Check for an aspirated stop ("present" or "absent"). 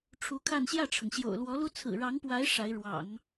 present